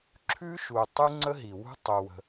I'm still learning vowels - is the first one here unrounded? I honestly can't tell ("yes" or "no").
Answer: no